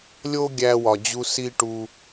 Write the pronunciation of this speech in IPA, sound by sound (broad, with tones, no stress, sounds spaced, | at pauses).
lʲ o˦ ɡʲ æ˧ w ɒ˨ d͡ʑ u˧ s i˦ ʈ u˧